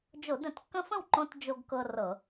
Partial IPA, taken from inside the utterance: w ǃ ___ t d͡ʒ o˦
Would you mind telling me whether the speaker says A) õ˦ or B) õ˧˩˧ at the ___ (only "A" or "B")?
A